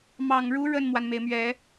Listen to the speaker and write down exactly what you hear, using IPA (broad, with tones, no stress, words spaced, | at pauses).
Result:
mɑ˨˩ŋɻu˧˥ ɻə˥˩nmwa˩nme˩ɪ̯mɥɛ˨˩˦